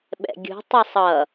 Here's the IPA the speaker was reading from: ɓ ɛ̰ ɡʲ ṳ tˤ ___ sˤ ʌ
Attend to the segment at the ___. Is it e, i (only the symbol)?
i